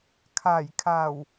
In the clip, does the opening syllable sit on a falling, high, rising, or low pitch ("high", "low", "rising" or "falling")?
low